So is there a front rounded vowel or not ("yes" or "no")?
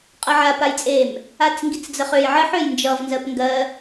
yes